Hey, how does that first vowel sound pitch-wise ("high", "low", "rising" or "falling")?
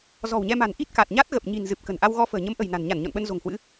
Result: low